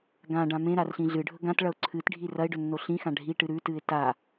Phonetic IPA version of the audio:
ɡ ã ɖ ã m ẽ ɾ a r ɬ ĩ ɮ ɨ ɖʱ ɵ ɡ ã t ɭ ɐ ʊ̯ ǀʰ ɨ t ɖʱ i r ɐ ɪ̯ ɖ ɵ nː o ɬ ĩ x ã ɖʱ i ʈ ɨ ɾ ʉ t ɨ ɪ̯ t a

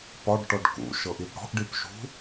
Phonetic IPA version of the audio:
p ɒ ɖ ʈ ɔ ɖ k ṵ ʃ ɤ ʔ i p ɽ ɔ̤ ʔ ɖ i p ʃ ṳ

